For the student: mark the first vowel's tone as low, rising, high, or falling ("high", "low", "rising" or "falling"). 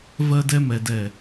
high